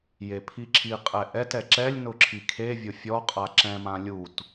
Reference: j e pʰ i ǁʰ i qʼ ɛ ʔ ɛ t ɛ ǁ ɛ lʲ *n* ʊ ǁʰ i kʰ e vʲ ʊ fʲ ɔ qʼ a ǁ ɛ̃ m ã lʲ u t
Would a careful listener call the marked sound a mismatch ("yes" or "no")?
no